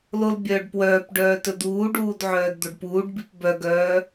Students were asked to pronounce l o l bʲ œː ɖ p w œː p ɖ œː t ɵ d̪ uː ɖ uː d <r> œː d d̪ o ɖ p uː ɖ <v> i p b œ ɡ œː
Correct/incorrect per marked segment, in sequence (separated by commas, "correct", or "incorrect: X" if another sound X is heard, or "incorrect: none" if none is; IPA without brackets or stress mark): incorrect: ʕ, incorrect: b